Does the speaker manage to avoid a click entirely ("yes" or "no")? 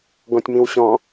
yes